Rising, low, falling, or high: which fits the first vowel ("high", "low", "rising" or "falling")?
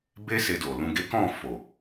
high